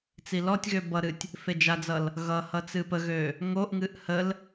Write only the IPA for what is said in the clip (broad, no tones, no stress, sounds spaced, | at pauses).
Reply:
t͡s i l ɔ tʲ ɣ ø b ʌ ɾ ɨ tʲ | f e d͡ʒ a d͡z ʌ l | ɣ ʌ h ʌ t͡s ɨ p ə ɣ ø | ŋ o ʔ ŋ ɨ ʔ h ə l